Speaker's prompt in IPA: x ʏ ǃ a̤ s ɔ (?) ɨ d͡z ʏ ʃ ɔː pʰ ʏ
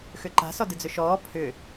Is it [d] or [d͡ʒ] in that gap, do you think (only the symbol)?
d